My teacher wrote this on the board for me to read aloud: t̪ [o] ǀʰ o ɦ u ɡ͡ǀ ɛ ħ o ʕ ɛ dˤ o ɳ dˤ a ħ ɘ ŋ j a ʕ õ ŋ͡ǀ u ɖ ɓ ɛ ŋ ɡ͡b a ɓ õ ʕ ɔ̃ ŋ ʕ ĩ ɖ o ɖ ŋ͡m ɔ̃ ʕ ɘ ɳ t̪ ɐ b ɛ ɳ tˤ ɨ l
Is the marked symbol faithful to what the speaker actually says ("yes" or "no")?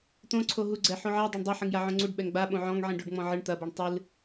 no